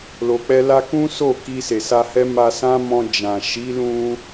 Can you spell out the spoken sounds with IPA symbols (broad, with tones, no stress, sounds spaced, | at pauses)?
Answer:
l o˨ k͡p ɛ˧ l a˧ k ũ˦ s o˦˨ k i˧ s e˨ s a˧ h ɛ˦ m a˧ s ã˦ m ɔ̃˧ d͡ʒ ã˨ ʃ i˨˦ l ũ˧